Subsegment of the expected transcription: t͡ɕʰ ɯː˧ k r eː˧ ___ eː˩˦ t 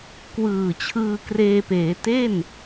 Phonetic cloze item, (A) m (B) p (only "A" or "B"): B